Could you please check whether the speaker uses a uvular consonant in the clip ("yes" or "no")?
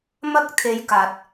no